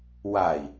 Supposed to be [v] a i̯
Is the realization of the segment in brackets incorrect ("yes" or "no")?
yes